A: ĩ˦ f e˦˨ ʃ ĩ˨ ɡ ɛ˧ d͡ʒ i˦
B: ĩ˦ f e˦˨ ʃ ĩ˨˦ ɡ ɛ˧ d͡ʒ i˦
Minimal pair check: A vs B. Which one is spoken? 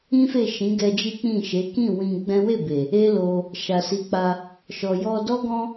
B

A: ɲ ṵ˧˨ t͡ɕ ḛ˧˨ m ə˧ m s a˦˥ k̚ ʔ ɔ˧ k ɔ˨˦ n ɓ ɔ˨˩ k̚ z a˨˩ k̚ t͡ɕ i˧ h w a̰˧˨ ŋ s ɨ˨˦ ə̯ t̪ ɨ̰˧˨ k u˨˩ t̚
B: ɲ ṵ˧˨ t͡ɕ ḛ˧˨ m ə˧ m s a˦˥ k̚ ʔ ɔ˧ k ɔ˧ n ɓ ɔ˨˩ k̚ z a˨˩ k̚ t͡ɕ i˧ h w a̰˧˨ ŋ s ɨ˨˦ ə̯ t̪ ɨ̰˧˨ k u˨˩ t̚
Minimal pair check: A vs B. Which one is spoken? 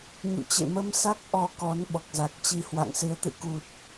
A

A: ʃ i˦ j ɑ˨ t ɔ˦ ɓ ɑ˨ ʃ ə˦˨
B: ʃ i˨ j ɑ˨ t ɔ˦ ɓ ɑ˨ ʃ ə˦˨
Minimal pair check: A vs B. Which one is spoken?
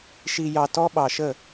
B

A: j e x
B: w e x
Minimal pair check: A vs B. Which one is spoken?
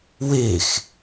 B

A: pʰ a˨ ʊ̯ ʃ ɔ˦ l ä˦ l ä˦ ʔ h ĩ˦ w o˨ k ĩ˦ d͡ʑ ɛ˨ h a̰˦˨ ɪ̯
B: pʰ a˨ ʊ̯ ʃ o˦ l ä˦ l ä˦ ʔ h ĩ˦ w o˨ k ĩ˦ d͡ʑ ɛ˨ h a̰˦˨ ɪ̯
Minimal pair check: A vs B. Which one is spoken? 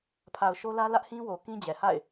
B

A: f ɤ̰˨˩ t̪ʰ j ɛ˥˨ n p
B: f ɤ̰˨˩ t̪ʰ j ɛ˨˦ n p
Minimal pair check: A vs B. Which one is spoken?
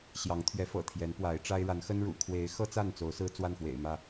B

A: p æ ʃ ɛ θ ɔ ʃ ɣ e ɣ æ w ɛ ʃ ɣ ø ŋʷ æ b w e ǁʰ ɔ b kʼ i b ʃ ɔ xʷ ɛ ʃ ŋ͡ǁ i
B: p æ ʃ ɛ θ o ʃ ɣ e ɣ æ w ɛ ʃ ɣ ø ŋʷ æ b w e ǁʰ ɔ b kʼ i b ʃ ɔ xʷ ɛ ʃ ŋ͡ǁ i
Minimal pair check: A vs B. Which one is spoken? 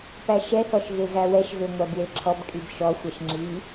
A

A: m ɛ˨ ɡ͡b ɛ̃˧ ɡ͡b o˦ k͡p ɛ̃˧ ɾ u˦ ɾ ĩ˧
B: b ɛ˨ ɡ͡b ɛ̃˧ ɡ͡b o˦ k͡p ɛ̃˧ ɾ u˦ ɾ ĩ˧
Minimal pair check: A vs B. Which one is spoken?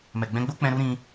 A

